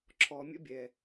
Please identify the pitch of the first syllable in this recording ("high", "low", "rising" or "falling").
low